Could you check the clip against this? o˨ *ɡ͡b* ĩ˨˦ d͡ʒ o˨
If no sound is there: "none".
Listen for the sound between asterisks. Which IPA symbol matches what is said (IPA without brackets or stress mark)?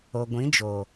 ɡʷ